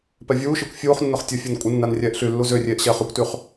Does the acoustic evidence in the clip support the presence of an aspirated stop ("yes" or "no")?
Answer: no